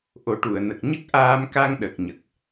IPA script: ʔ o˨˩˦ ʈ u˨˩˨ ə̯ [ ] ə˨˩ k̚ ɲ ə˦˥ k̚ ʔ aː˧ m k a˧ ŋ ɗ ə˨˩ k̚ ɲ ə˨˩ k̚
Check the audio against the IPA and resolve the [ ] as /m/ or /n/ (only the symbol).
n